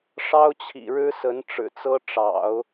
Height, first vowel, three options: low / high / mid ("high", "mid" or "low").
low